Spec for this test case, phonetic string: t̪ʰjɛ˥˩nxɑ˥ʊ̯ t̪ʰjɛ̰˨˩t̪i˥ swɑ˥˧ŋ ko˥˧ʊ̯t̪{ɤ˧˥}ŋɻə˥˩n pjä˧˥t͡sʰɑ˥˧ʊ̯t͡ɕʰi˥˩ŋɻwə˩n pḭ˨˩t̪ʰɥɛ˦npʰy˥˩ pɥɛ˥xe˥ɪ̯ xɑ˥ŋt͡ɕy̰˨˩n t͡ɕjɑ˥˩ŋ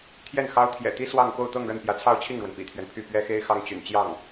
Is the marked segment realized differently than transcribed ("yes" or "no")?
yes